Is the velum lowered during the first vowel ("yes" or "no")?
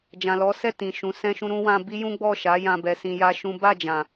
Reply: yes